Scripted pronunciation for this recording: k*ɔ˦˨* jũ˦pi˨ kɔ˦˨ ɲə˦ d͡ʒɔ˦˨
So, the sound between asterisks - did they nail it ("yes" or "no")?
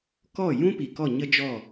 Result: yes